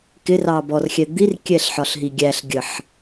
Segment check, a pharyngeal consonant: present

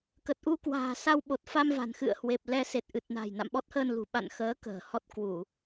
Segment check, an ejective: absent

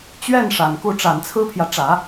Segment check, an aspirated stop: present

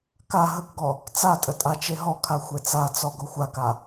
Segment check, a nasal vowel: absent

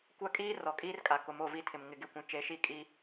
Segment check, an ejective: present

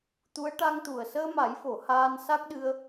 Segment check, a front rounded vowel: absent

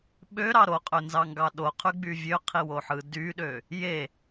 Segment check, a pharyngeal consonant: present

